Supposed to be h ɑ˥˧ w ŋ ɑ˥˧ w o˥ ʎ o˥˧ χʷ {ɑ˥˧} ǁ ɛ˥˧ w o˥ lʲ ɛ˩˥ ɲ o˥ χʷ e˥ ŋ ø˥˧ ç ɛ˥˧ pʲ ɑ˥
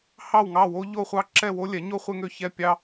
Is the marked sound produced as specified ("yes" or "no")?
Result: yes